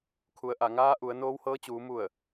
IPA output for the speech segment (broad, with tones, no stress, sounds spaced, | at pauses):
kʰ u˩ ə̯ ʔ a˧˩ ŋ aː˧˥ ʔ u˩˧ ə̯ n oː˧˥ w h ɤː˧˥ t͡ɕ uː˩˧ m u˧˩ ə̯